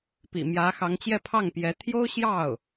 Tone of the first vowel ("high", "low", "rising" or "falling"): low